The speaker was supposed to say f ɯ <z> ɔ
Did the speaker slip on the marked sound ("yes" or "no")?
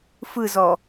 no